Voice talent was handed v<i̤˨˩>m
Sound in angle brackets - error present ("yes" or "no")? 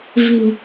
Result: no